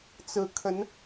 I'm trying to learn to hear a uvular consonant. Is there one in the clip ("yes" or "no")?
no